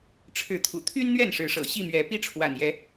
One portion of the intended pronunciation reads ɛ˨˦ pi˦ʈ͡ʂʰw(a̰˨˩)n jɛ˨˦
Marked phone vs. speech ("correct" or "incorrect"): correct